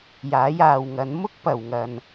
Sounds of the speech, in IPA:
j aː˨˥ j aː˨ w ŋ ɐ˨˥ n m ʊ˥ k̚ p ɐ˨ w ŋ ɐ˧ n

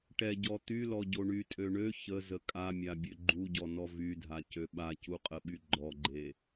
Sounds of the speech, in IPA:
ʈ ɛ ɟ ɔ t̪ y l ɔ ɟ o ɳ y tʼ ø ɳ ø ç ə z ə kʼ a mʲ a bʲ ø ɡ͡ǃ u ɟ ɔ n ɔ v y dʱ a c ø ɓ a c u qʼ ə ɓ y ɡ͡ǃ ɔ ɡ͡ǃ e

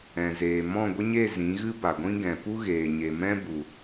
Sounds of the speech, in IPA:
ɛ̃˨ z eː˨ m ɔ̃˦˨ ɡʷ ə˦ ɲ e˦˨ z ĩ˨˦ ɣ ɨ˦ b a˨ ɡʷ ĩ˦ ɡ ɛ̃˨ p u˦ ɣ eː˨ ɲ e˨ m ɛ̃˦ b u˨

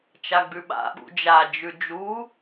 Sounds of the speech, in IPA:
t͡ʃ a ɡ͡b ʉ ɓ a̰ ɓ ṵ d͡ʒ a d͡ʒ ʉ d͡ʒ u

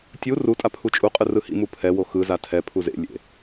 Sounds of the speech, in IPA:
tʲ u r u tʼ a pʰ u t͡ʃʼ u qʼ ɯ r ɯ h ḭ m u pʰ ɛ w o x ɯ z a tʰ ɛ pʰ u z ḛ lʲ ḛ

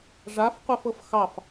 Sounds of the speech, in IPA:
ʐ a f qʷ ɛ f ɤ f x ɑ f

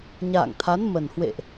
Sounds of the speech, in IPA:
ɲ a̰ː˧˨ ŋ t̪ʰ a˨˦ n m ə˨˩ n h w ḛ˧˨ ʔ

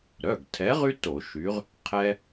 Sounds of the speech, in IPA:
ɾ œ˩˧˩ ɡ tʰ ɛ˨˥ ʁ y˦ t o˧˩˧ ʃ y˨˥ ʁ | qʰ ɛ˦

